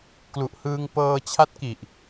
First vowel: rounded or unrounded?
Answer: rounded